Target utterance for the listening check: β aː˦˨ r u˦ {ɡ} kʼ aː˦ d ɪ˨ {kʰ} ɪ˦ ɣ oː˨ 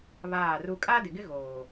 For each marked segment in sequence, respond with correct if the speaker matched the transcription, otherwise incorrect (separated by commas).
incorrect, incorrect